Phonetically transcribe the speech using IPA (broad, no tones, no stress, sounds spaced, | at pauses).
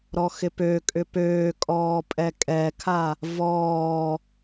ɾ ɔ x ɪ p ø kʼ ʏ p øː kʼ ɔː pʼ ɛ kʼ ɛ kʰ a | v ɔː